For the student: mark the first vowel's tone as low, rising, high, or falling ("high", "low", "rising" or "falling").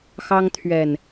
high